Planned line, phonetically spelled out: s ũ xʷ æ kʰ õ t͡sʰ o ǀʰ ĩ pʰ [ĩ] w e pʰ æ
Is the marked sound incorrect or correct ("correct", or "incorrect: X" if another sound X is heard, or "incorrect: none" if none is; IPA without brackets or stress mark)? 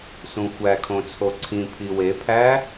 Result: incorrect: i